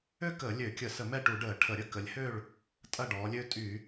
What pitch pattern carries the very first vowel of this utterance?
high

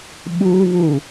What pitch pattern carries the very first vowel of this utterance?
high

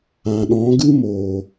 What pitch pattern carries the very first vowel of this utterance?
low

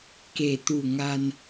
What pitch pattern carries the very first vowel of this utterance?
low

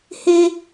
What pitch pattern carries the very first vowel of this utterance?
high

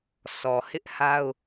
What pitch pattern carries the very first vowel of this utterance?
low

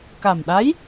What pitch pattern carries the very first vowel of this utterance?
low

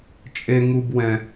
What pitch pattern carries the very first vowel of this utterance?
high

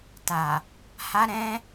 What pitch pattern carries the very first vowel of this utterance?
low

